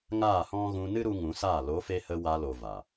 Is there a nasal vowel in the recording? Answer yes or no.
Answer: yes